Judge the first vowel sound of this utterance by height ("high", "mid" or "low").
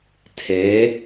mid